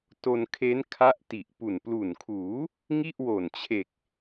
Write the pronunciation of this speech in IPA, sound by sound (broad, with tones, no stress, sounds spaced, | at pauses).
t o˧ n kʰ e˦˥ n kʰ a˦˥ ʔ t i˨˩ ʔ p u˨˩ n p l u˨˩ n kʰ uː˩˦ | ŋ i˥˩ ʔ w o˨˩ n t͡ɕʰ e˨˩ k̚